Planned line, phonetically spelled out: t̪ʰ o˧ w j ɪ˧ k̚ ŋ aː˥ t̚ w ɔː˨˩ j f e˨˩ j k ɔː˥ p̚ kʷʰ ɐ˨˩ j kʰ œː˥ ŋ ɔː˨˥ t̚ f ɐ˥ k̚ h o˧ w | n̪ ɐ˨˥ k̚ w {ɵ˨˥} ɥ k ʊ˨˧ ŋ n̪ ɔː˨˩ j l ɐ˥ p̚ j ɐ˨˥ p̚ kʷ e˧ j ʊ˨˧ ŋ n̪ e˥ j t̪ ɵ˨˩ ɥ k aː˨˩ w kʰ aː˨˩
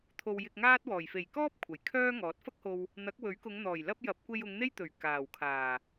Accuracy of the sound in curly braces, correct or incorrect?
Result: correct